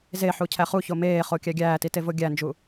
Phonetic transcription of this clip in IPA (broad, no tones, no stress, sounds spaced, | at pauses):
z e ħ u cʰ æ χ u ç o m eː χ o kʲ æ ɡʲ æː t i t e v o ɡʲ æ n d͡ʒ u